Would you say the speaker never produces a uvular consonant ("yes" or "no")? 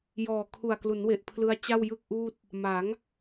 yes